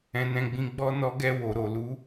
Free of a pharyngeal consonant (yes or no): yes